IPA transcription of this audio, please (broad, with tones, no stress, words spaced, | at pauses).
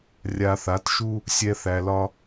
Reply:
rʲa˧θa˨˥t ʃu˥ | sʲɛ˥θæ˧lɒ˥